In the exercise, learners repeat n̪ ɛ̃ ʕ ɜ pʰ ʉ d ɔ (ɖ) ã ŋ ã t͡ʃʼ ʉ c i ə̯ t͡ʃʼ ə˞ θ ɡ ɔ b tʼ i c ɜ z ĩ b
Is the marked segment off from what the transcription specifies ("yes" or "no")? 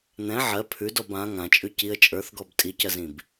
yes